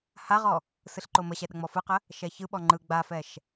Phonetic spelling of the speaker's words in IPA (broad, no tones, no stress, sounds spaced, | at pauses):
h a ʁ ɔ | s ɯ ɬ ǃ o m ə ɕ ɛ ɗ ə ŋ͡m ɔ f ɯ q ə | ʃ ɛ ç ɯ ɓ ɔ ŋ͡ǃ ɯ ɡ͡b a f ɛ ʃ